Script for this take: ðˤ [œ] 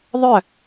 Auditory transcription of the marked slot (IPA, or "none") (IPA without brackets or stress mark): œ